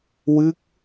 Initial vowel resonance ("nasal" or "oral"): oral